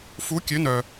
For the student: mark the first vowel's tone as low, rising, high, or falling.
rising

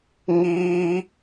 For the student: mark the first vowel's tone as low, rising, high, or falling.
high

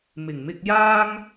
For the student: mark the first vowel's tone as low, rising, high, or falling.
low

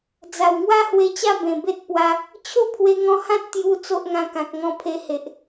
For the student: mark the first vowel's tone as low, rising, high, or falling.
low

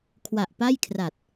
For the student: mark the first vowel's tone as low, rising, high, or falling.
low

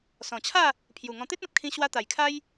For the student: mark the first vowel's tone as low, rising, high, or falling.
low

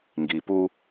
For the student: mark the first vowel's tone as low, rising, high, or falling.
low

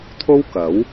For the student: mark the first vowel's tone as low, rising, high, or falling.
high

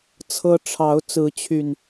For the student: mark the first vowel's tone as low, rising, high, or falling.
high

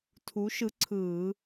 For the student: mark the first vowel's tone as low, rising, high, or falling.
rising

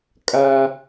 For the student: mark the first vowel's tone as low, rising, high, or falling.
high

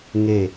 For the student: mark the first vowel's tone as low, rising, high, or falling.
low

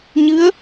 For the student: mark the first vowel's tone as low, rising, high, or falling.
rising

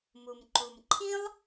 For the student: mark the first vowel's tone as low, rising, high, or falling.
low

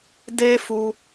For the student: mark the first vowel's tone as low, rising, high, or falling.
high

